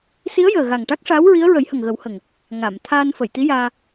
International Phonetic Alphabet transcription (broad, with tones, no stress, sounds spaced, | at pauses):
s i˧˥ ə̯ j əː˨˩ ɣ a˨˩ ŋ ʈ a˦˥ k̚ ʂ aː˧˥ w ɹ i˧˥ ə̯ ɹ ə˨˩˦ j h ə˨˩ ŋ ɣ ə˨˩˦ w h ə˨˩ ŋ | ŋ a˨˩˨ m t̪ʰ aː˧ n f ə˨˩˨ j t̪ i˧˥ j aː˧